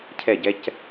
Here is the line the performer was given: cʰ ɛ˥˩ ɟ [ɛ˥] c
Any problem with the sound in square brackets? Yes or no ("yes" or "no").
no